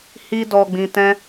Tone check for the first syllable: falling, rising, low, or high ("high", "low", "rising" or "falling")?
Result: high